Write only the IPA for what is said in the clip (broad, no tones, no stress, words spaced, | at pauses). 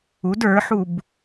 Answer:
ud ə˞ħub